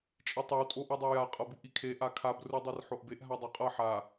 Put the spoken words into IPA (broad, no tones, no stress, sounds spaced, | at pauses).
t͡ʃʼ i tˤ ɯ w tʼ o ʔ i dˤ ɯ j a qʼ ʌ b u ʔ i kʰ e ʔ a kʰ a b r u dˤ i r ħ o ʔ b e ʔ ɦ a dˤ o qʼ ʌ ħ a